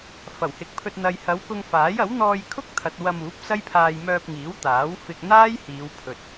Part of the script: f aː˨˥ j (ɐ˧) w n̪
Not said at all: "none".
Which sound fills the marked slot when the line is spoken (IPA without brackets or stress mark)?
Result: ɐ˨˥